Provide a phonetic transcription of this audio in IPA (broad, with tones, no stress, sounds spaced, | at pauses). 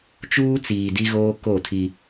t͡ʃ uː˦ t͡s iː˨ d i˦ ɣ oː˦ k o˦˨ tʰ i˦